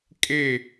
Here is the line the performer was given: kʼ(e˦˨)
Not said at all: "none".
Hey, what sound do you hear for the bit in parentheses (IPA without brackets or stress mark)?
e˦˨